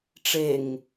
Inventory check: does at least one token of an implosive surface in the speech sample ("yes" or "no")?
no